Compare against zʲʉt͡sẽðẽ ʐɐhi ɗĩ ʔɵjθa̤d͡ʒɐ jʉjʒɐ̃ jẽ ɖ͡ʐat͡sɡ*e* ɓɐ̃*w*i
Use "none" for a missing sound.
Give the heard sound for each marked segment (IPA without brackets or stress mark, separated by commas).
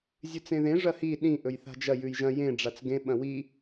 ẽ, w